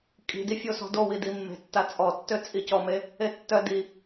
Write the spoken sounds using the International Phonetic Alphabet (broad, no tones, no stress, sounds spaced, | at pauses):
kʼ i̤ d i fʲ o s ɔ̤ d o w i d i mː e̤ tː a t͡sʼ ɔ tː ø t͡sʼ i c ɔ m e | e tː œ d i